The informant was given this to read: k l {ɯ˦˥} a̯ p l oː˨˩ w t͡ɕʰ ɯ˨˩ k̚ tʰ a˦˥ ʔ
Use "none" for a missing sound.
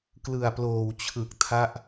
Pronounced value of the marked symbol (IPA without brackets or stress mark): ɯ˨˩